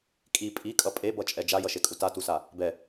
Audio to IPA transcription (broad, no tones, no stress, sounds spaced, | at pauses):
kʼ i pʼ i kʼ ʌ pʼ e b ʌ t͡ʃʼ ɛ d͡ʒ a j ʌ ʃ e kʼ u t a t u s a | b ɛ